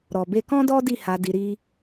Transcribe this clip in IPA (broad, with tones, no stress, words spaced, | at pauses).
ɾɔ˨be˧kɔ̃˦dɔ˦ di˦˨ha˧ di˧ɾi˦